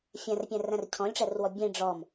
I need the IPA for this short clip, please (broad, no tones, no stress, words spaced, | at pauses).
fʲæ̃rpʲæ̃ræ̃r cʰɔ̃lʲʈ͡ʂærwɔ bʲẽ ɖ͡ʐɔm